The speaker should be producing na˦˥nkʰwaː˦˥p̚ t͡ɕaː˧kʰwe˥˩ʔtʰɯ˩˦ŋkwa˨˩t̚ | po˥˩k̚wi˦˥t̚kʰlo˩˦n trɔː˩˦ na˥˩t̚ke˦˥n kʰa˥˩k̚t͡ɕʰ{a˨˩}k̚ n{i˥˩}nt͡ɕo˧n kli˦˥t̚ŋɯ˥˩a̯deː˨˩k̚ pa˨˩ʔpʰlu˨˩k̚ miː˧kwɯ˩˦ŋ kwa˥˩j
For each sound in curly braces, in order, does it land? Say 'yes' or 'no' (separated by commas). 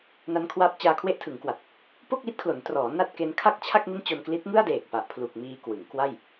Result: no, yes